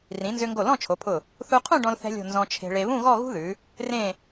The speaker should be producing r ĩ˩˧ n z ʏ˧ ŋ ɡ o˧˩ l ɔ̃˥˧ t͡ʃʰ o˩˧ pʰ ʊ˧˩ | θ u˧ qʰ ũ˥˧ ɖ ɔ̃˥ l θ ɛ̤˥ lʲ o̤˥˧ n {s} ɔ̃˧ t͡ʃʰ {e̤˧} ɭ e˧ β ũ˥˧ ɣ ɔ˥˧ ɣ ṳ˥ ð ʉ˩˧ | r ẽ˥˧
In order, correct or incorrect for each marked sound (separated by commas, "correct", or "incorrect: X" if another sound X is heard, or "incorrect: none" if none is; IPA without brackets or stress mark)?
incorrect: z, correct